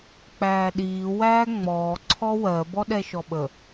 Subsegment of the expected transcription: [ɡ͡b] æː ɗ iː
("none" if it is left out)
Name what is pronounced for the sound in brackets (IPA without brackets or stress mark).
k͡p